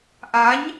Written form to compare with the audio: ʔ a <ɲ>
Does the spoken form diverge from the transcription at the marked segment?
no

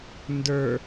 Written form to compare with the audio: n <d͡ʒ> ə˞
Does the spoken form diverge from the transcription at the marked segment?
yes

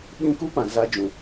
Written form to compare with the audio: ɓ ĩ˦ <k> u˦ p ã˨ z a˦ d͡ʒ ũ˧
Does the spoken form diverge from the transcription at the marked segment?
no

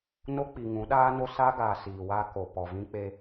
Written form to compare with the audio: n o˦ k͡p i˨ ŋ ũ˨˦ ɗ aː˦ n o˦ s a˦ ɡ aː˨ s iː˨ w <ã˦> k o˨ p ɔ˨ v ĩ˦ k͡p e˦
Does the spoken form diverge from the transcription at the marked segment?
yes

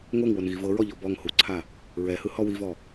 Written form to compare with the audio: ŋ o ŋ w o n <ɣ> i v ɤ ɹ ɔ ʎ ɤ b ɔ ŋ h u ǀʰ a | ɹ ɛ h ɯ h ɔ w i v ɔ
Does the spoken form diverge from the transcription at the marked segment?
no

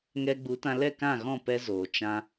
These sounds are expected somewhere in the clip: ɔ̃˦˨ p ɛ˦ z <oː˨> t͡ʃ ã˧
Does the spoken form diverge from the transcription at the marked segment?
no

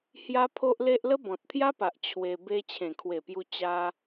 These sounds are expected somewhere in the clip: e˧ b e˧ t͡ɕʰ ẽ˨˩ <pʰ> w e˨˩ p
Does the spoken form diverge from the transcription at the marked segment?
yes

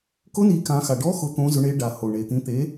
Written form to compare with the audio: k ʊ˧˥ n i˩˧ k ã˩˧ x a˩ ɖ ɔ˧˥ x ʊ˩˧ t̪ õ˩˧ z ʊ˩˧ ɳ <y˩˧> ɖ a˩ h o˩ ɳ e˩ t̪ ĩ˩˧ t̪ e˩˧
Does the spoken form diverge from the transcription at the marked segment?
yes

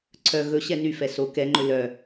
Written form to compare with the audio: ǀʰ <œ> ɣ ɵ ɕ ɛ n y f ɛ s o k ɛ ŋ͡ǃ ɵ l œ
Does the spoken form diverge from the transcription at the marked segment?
no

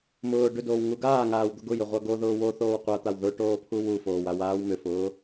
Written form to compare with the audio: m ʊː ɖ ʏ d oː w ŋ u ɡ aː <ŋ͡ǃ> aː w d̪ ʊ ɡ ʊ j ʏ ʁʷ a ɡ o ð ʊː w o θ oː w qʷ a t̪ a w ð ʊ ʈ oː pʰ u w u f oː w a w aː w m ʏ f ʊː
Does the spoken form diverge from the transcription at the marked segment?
yes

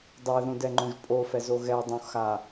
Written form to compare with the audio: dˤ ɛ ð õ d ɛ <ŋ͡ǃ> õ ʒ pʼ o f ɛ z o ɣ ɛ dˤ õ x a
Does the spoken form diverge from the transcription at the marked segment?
no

